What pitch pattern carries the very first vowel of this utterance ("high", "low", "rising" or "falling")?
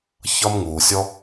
high